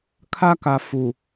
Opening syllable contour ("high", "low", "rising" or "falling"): high